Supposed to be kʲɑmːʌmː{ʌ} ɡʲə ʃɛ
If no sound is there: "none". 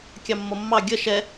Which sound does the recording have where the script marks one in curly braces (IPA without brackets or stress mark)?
ɑ